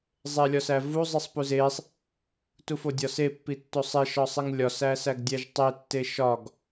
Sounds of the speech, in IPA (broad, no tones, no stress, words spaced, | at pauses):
zˤelʲɒsævu zˤisˤpuzesˤ | tufodʲɒse pːitːosˤe ʃɒsˤiŋlʲɒ sæsæɡdʲæʒtˤe tːeʃɒɡ